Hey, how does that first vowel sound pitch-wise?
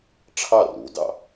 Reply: falling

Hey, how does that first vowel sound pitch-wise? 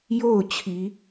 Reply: falling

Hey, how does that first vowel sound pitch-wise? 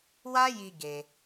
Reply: high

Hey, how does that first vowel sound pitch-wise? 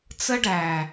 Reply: high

